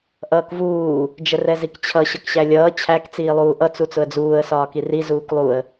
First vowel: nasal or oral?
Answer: oral